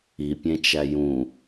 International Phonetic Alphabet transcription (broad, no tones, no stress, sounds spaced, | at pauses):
i pʲ ẽ t͡ʃ æ j ũ